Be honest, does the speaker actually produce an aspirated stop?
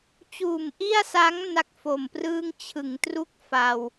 yes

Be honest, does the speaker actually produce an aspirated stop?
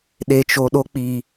no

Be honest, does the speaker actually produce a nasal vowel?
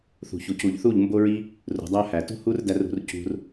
no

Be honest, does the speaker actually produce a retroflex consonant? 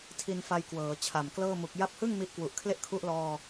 no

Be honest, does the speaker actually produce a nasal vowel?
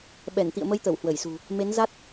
no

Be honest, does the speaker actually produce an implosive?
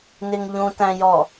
no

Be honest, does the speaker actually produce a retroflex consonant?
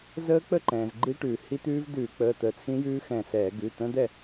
yes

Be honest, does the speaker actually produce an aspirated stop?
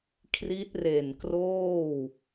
yes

